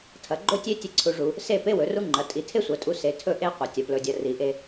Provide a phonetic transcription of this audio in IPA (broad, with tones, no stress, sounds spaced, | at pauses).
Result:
tʰ ɐ˩˧ ɡ͡ǃ ɵ˥ tʲ e˥ tʲ e˥ ǀʰ u˧ ʐ u˩˧ | s e˥˧ p e˥ w ɵ˩˧ r u˥ ŋ͡ǃ ɐ˩˧ tʼ i˧˩ tʰ e˥ sʷ ɐ˩˧ tʼ u˧ s e˩˧ tʰ ɵ˥˧ ʔ e˥ qʷ ɐ˩˧ tʲ ɐ˩˧ p l ɵ˧˩ dʲ ɐ˧ r i˩˧ ʔ e˧